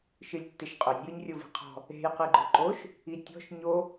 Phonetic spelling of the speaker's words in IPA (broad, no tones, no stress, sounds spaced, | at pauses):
ʃ ɨ lʲ tː ɪ ʃ qʼ ʊ nʲ j ɨ ɲ rʲ o v i̤ qʰ ɔ̤ | e̤ j q ɨ ɡ͡ǃ ʊ ǃ o ʃ | i tʲ ɔ̤ ʃ ɲ o